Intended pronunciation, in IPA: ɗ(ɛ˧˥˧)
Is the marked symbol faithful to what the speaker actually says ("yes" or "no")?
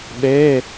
no